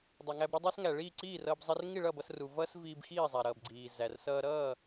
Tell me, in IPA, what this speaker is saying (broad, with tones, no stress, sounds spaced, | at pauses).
dˤ ʌ˩ ŋ æ˧ b ɾ ʌ˥ dˤ ə˞˥ s ŋ æ˩ ɭ iː˥˨ ǀ iː˥˨ r ʌː˧ b zˤ i˧ r ŋ i˥˨ ɭ ʌː˥˨ b ʌ˧ s r u˩ v ʌː˥ s v iː˧ b x iː˥˨ zˤ æ˩ ɾ ʌː˩ b ɡ͡ǀ iː˩ z æ˩ r s ʌː˧ ɾ ʌː˥˨